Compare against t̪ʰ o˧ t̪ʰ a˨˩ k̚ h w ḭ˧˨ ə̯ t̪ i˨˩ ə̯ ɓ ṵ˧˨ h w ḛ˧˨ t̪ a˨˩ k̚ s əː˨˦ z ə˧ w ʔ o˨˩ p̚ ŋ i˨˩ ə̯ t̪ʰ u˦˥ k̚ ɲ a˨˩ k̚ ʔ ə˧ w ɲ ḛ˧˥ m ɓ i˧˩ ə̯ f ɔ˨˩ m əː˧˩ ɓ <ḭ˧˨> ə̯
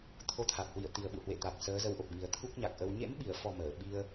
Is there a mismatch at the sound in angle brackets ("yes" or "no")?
yes